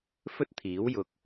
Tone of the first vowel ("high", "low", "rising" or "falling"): high